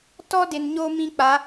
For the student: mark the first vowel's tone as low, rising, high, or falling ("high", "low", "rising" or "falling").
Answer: high